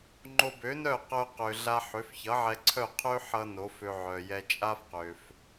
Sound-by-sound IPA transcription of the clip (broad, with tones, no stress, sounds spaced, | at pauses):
ŋ͡ǃ o˧ b ø˩˥ n œ˥˩ q œ˧ q ø˩ ɮ a˧ ħ ø˩˥ f ç ʌ˩˥ ʕ ɛ˧ ǀʰ œ˥˩ qʰ ø˥ ħ ʌ˧ n o˩˥ f ø˧ ʕ œ˩ j ɛ˧ t͡ʃʼ a˥ f q ø˩ f